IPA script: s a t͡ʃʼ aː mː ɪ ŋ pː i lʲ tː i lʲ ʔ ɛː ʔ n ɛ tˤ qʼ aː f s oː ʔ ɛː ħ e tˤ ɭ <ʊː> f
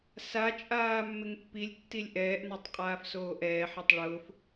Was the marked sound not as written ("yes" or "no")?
no